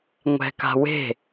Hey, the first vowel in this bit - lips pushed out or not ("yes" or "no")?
no